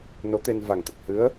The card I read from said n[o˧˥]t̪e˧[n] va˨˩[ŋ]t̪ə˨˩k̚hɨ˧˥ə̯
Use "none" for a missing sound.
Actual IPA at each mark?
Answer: o˧˥, n, ŋ

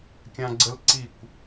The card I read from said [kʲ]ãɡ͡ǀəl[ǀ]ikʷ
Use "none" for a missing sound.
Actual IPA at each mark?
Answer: kʲ, ǀ

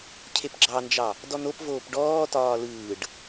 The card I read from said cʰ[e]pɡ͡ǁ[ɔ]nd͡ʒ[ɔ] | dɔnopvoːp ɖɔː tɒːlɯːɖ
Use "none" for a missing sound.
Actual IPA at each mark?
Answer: e, ɑ, ɑ

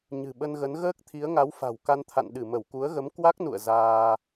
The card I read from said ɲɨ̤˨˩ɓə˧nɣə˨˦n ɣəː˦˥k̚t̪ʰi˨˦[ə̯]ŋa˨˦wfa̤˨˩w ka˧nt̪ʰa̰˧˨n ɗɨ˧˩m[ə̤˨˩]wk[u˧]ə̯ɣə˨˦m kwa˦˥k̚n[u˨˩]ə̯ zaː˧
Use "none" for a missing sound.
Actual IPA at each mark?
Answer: ə̯, ə˧˩, u˨˦, ṵ˧˨

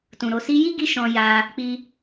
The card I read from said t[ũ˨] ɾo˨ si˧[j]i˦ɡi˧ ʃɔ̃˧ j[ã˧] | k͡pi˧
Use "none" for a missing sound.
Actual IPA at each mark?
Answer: ũ˨, j, a˧

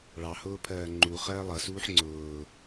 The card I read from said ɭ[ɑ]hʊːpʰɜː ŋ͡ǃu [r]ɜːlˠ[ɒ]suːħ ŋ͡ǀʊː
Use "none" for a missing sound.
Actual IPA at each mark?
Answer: ɑ, χ, ʌ

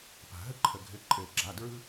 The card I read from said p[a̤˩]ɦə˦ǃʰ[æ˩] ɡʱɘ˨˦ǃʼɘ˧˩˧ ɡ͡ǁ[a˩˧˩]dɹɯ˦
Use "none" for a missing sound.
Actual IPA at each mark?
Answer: a̤˩, ə˩, a˩˧˩

